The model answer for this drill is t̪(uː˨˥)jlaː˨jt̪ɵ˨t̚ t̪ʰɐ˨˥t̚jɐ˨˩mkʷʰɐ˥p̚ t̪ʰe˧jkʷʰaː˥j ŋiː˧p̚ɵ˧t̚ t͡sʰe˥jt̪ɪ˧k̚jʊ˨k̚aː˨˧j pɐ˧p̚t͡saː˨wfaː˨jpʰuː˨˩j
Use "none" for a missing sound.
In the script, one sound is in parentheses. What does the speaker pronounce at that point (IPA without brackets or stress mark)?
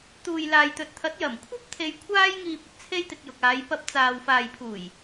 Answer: uː˨